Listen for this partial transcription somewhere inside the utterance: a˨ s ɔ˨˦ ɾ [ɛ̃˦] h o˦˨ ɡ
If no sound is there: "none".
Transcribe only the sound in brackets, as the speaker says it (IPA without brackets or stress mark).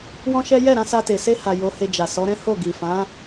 ɛ̃˦